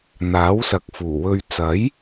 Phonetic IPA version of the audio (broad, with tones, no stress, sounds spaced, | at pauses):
n̪ aː˨˥ w s ɐ˨ k̚ f uː˨˩ w ɵ˧ ɥ t͡s ɐ˨˥ j